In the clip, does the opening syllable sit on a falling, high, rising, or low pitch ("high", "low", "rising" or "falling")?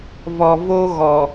low